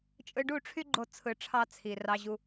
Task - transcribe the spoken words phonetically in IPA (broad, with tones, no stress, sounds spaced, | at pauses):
t͡ʃʼ ɯ˧ ɖ u˦˨ ʈ͡ʂʰ y˦ ɡ͡ǃ o˦ t͡sʰ ɯ˧ ʈ͡ʂʰ ɑ˦ t͡sʰ i˨ r ɑ˧ ʑ u˧